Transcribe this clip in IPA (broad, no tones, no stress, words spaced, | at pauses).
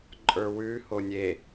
ǃʼə˞wʉ honʲe